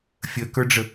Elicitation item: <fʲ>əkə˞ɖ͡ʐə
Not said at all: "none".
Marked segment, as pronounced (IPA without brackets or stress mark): fʲ